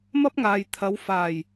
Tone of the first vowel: high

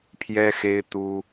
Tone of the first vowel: high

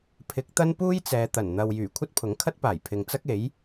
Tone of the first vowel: rising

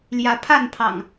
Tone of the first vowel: rising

